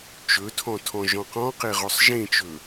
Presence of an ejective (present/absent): absent